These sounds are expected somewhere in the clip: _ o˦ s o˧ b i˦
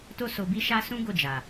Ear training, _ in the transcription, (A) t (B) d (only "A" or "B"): A